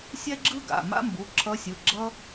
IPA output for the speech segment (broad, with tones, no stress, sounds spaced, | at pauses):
sʲ ɛ˥ ɡ͡ǁ ɯ˥ ɡ a̰˩˧˩ m a̰˥ m b u˩˧˩ ǁʰ ʌ˧˥ sʲ ɯ˩˧˩ ɡ͡ǁ ʌ˥